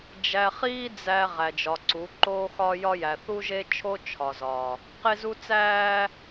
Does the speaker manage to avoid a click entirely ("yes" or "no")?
no